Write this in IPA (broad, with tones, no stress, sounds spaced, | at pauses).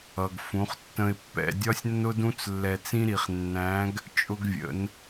ʌ˩ ɡ f ũ˩˧ χ tː ə̃˧ ɪ̯ pː ɛ̰˧ dʲ ɒ˥ sʲ nː ʊ˥ d ũ˥ t͡s lː ɛ˧ t͡s ĩ˥ ɾ i˩˧ χ nː æ̃˧˥ ɡ | t͡ʃʼ ʊ˧ ɡ vʲ ə̰˩˧ n